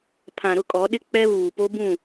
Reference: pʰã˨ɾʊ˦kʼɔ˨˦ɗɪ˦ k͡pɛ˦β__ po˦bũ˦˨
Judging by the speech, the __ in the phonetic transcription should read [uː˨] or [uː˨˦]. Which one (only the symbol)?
uː˨